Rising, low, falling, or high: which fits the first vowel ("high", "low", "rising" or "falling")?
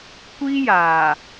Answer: high